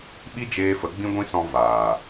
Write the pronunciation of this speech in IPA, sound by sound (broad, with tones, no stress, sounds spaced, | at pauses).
ɓ i˦ d͡ʒ eː˧ f ə˨˦ ɡ͡b ĩ˦ ɡʷ ĩ˦ s ɔ̃˧ v aː˨